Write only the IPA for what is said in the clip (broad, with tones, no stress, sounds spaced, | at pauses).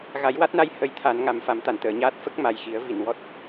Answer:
ɣ a˨˩˦ j w a˦˥ t̚ n a˧ j h ə˧˥ j t̪ʰ a˨˩˦ n ŋ a˨˩ m f a˨˩˦ m t̪ a˨˩˨ n t̪ əː˨˩˨ ɲ aː˦˥ t̚ f ə˦˥ k̚ m a˨˩ j x i˨˩˦ ə̯ v i˨˩˨ n w ɔ˦˥ t̚